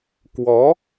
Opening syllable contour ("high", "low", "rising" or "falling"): rising